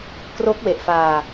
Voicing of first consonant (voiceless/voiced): voiceless